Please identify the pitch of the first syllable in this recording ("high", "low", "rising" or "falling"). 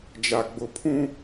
low